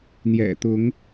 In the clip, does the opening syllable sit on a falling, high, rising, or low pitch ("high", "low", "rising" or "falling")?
low